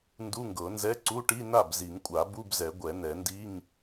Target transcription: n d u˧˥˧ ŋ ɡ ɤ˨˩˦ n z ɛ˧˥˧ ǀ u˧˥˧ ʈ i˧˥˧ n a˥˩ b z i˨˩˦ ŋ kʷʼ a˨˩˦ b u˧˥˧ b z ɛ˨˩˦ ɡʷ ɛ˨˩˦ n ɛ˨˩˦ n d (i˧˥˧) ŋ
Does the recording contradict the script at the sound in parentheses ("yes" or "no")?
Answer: no